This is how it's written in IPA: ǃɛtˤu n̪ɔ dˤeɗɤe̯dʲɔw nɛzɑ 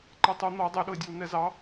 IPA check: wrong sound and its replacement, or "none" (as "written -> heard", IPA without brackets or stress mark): none